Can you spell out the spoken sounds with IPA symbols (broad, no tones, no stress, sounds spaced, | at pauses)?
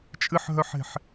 t͡ʃʼ ɨ ħ ɦ œ ħ e̤ ħ